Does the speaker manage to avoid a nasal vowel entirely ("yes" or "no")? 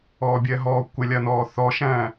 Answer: no